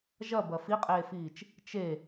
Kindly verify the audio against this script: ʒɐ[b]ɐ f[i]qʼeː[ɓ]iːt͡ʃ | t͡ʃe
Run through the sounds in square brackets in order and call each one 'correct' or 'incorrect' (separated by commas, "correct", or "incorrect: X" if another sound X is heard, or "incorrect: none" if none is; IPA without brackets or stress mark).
correct, correct, incorrect: f